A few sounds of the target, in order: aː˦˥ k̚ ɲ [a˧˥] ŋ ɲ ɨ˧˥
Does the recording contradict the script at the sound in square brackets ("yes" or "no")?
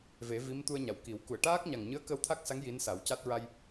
yes